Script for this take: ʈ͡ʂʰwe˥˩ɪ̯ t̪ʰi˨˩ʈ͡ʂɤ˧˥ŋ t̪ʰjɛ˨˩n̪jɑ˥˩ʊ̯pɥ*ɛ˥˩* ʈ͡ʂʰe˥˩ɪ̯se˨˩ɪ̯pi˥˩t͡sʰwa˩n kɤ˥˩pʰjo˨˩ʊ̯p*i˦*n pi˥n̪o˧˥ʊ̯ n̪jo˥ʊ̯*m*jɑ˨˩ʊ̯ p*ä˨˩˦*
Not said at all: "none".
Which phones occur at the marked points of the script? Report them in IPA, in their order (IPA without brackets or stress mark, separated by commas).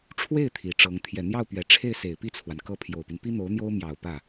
ɛ˨˩, y˦, m, ä˥˩